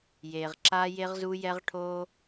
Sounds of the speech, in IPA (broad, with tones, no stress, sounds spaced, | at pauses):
j e˩ ʁ ǁ aː˧ j e˧ ʁ z u˧ j ɛ˧ ʁ ʈʰ oː˧